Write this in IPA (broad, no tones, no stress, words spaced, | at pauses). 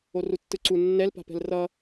orutːɯǀu nːɛlpa̤pɛ̤l rʌ